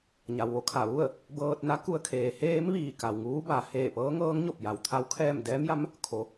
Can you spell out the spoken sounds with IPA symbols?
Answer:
ɲ a˩ w ʋ o˥˨ kʰ a˧˩ ʋ u˥˨ ə̯ | b ɤː˧ t̚ n a˧˥ k u˧ ə̯ kʰ eː˩˧ h eː˧˥ m ʋ iː˧˩ k a˩ w ŋ uː˧˥ b a˩˧ h eː˧˩ p ɤː˧˥ ŋ ɤː˧˥ ŋ ɲ o˧˩ p̚ j a˩ w t̪ʰ a˧˥ w kʰ ɛː˥˨ m d ɛː˧˥ m j a˧˥ m | kʰ o˩˧

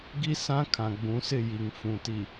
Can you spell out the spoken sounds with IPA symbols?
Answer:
ɡ i˦ s ã˦ kʰ ã˨ ɡ͡b ũ˨˦ s ɪ˦˨ j i˨ ŋ f ũ˨ t i˨

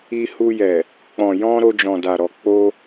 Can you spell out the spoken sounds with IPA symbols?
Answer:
i˧ h u˧ j ɛ˨ | k͡p ɔ̃˨ j ɔ̃˧ ɾ o˧ d͡ʒ ɔ̃˨ d a˨ ɾ ɔ˨ k͡p o˧

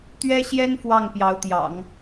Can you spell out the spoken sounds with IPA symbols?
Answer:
t̪ ɥ ɛ˥ ɕ j ɛ˥ n f w ɑ˥˩ ŋ p j ɑ˧˥ ʊ̯ t̪ j ɑ̰˨˩˦ ŋ

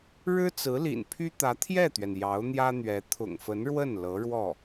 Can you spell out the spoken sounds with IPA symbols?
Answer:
ɻ ɻ̩˥ t͡s ɹ̩˧˥ l ḭ˨˩ n pʰ y˥ t̪ ä˧˥ t̪ʰ j ɛ˥˩ t̪ ɥ ɛ˩ n j ɑ˧˥ ʊ̯ n̪ j ä˥ n̪ ɥ ɛ˧˥ t̪ʰ ʊ̰˨˩ ŋ f ə˧˥ n ɻ w ə˥˩ n l ɤ˧˥ ɻ w ɔ˥˩

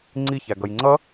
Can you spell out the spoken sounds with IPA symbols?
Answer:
ŋ͡ǀ i ç æ ɡ ʌ j ŋ͡ǀ ʌ

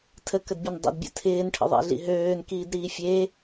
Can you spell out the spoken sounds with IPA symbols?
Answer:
tʰ ə k ə d bʲ ə n dˤ ə̰ d bʲ ə̰ tʰ ɪː n ʈʰ ə̰ ðˤ ḛ ɮ ḭ ɦ øː n k iː d ɾ iː fʲ e

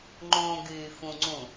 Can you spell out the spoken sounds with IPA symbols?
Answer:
ŋ͡ǃ õ ɡ yː f ũ ŋ͡ǀ ũ

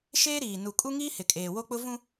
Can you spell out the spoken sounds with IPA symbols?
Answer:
ʃ eː˦ ɾ iː˨ n u˨ kʼ u˦ ŋ iː˦ h ɪ˨ kʼ eː˨ w o˦ k͡p ʊ˦ v ũ˦

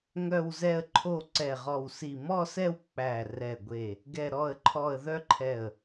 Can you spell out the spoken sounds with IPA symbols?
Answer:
ŋ œ˥˧ w z ɛ˥˧ ə̯ ǃʰ o˥˧ ǀ ɛ˧˩ ʁ ɔ˧˩ w s i˧˩ m ɔ˥˧ s ɛ˥˧ w k͡p æ˧˩ r ɛ˧˩ ɡʷ e˧˩ | ɡ ɛ˥˧ ɾ ɔ˥˧ ə̯ ǃʰ ɔ˥˧ ə̯ ð œ˥˧ ǃʰ ɛ˧˩ ə̯

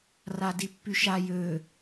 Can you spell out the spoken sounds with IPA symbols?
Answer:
r a d i pː y ʃ a j ø

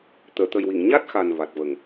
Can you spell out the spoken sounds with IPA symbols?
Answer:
t̪ əː˨˩˨ t̪ ə˨˩ j w i˨˩˨ ŋ ɲ a˦˥ t̚ x a˨˩ n v a˨˩ t̚ v ə˨˩ ŋ

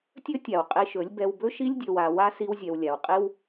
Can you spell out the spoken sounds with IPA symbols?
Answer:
tʲ ɵ˦ tʲ a˨ w qʼ i˧ ʃ ɵ˨˦ lʲ b ɛ˧ w b ɵ˦ ʃ i˦ lʲ dʲ ɵ˨ w a˨ w a˦ s i˧ w zʲ ɛ˨ w lʲ a˨ w qʼ i˦ w

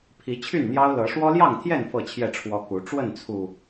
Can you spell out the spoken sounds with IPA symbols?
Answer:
pʰ i˨˦ t͡ɕʰ y˥˨ n n̪ j ɑ˦ ʊ̯ l ɤ˨˦ ʂ w ɔ˦ l j ɑ˥˨ ŋ t̪ʰ j ɛ˥˨ n f ɤ˥˨ t͡ɕʰ j ɛ˥˨ ʈ͡ʂʰ w ɔ˦ k u˨˦ ʈ͡ʂ w ə˥˨ n t͡sʰ u˨˩

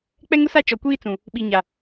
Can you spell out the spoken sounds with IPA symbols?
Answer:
k͡p ɛ˦ ŋ ʊ˦ s a˦ t͡ʃ ɔ˨ kʷ iː˦ t͡s ũ˨ | ɓ i˨ ɲ a˨

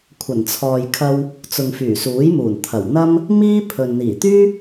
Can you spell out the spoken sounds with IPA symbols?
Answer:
kʷʰ ɐ˨˩ n t͡sʰ ɔː˨ j kʰ ɐ˧ w | t͡s ʊ˨ ŋ f yː˨˩ s uː˨˥ j m uː˨˩ n t̪ʰ ɐ˨˩ w n̪ ɐ˥ m | m iː˥ pʰ ɵ˨ n n̪ iː˨˩ t̪ yː˥

